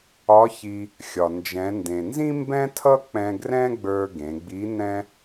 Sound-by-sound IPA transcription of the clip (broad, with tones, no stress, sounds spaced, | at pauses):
ɒ˧˥ ç i˧ | xʲ ɒ˩ n d͡ʒ ɛ̃˩˧ n d ẽ˩ n z ĩ˥ m b ɛ̃˥ tʰ ʌ˥ k͡p ɛ̃˧ ɡ r ɛ̃˥ ɡ͡b ə˞˧ ɡ ẽ˩˧ ɡ͡b i˧˥ n ɛ̃˥